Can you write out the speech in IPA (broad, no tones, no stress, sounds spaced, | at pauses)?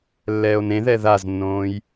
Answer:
lː ɛː o̯ n ẽ ð ɛ ð a z nː õː j